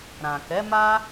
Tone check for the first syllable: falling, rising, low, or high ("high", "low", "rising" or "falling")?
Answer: low